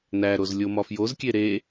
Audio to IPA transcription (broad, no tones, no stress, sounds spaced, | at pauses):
n æ ɾ o z lʲ o m ɒ f j o z kʲ e ɾ e